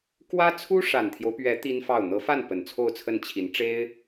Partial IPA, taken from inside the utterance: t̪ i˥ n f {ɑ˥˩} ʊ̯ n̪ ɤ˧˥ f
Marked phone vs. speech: correct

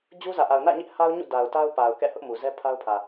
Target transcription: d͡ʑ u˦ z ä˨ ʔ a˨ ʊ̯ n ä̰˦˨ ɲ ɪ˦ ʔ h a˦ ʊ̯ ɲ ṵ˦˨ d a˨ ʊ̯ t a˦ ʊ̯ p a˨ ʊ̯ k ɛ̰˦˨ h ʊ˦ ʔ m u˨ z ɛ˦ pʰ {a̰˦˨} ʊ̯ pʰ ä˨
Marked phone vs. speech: incorrect: a˦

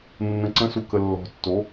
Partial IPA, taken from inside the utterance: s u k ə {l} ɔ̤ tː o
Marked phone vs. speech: incorrect: lː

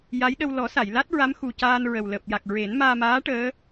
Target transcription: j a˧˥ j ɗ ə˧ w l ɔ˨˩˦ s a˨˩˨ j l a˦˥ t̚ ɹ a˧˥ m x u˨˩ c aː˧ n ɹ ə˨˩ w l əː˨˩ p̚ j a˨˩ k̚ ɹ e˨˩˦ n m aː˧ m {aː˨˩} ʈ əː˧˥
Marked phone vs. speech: incorrect: aː˧˥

